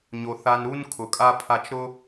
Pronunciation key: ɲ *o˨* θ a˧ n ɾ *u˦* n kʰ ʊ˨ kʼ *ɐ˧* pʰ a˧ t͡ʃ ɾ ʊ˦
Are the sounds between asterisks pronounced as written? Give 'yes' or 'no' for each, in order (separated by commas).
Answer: yes, yes, no